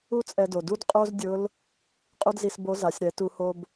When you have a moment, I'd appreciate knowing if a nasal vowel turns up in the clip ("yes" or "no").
no